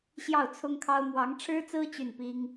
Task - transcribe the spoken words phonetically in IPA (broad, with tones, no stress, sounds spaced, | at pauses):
ɕ j ɑ˥˩ ʊ̯ t͡sʰ ʊ˥ ŋ kʰ ɑ˥ ʊ̯ m w ɑ˧˥ ŋ ʈ͡ʂʰ ɻ̩˥ t͡s ɹ̩˥ t͡ɕ y˥˩ n p i˥ ŋ